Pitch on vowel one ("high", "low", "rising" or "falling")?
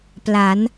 rising